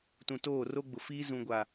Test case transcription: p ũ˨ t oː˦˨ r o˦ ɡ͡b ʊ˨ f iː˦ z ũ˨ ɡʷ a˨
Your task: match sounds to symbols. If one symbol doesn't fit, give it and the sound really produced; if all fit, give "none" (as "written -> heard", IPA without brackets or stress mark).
p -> t